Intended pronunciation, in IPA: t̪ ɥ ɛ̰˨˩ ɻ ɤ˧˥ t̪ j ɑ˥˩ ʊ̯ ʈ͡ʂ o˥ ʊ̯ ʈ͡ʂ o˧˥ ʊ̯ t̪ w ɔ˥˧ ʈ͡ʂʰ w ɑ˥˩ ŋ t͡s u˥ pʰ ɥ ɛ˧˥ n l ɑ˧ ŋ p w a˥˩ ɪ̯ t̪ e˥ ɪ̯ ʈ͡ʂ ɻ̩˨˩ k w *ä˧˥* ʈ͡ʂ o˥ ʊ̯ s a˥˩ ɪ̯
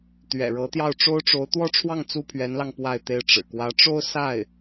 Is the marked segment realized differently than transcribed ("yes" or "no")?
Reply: no